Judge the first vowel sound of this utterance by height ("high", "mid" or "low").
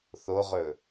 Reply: mid